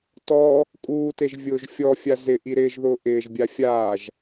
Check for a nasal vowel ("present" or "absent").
absent